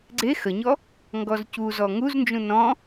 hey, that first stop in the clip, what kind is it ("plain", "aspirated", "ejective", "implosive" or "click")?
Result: click